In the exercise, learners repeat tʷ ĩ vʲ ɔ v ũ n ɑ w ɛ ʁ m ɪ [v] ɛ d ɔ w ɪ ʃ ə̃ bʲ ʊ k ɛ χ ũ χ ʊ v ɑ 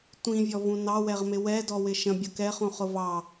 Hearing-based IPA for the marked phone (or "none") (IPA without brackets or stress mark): w